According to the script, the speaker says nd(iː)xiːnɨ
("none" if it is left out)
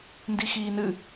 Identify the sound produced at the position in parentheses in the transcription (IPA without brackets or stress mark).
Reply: i